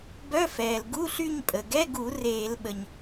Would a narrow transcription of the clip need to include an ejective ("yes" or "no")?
yes